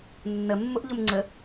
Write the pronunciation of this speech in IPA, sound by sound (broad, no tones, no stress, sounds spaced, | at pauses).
nː ə mː ʊ ʔ ʎ ʊ m ŋ͡ǀ ə